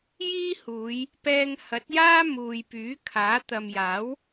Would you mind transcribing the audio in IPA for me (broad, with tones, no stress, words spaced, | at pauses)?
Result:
jiː˥huː˨˧j | pɛː˧ŋhɐ˨˥t̚jaː˥ muː˨jpyː˨˥kʰaː˨˥ t̪ɐ˨mjaː˨˥w